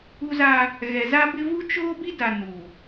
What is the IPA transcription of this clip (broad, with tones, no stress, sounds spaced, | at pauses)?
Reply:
u˦ z a˦ | ɣ ɛ˨ z a˦ b ɪ˦ v u˦ t͡ʃ oː˦ b i˦ d a˨ n u˨